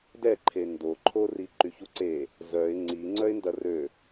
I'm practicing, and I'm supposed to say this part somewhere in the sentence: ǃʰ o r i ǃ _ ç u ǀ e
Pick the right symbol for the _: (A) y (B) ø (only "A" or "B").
A